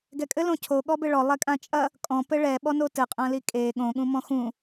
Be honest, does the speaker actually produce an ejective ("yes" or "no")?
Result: yes